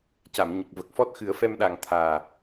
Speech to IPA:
c a˨˩˨ m ɲ ə˨˩ k̚ v ə˨˩ k̚ f ɔ˦˥ t̚ x ɨ˨˩˦ ə̯ f ɛ˧ m ɗ a˨˩ ŋ t̪ʰ aː˨˩

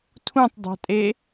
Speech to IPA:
tʰ ũ tˤ dˤ a̤ tʼ e

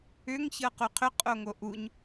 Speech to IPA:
ʏ ŋ ç ɤ q u qʰ ʏ qʼ o ŋ o ʔ u ɲ

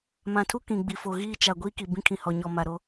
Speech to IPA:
m ã˨ tʰ u˦ k ĩ˨ ɡ͡b i˨ f o˨ ɣ iː˦ t͡ʃ a˨ ɡʷ iː˦ k i˨ b ĩ˦ kʰ ĩ˨ h ɔ˨ ɲ ɔ˨ m a˨ ɾ o˦

